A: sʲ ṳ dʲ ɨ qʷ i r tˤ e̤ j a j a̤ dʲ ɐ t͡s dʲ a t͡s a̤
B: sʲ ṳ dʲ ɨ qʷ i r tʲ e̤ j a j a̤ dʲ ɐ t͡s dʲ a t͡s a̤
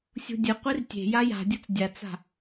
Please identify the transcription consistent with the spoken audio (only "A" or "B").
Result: B